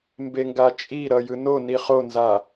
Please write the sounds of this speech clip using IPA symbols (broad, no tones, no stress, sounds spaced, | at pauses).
m b e ŋ ɡ a t͡ʃʼ i ɾ ʌ j ɯ n o n i χ o n z a